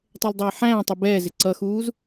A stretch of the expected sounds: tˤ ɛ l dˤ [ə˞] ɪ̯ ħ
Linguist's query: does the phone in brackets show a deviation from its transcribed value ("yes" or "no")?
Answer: yes